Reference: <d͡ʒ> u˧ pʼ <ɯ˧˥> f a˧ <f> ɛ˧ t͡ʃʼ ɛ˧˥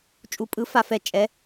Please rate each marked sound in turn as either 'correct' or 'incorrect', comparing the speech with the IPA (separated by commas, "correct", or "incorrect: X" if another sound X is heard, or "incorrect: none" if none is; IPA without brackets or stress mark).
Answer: incorrect: t͡ʃʼ, correct, correct